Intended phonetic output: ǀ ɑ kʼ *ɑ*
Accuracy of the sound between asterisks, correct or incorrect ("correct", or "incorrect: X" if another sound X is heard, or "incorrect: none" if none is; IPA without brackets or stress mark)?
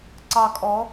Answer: incorrect: ɔ